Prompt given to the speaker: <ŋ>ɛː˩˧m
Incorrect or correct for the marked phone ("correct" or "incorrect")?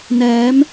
incorrect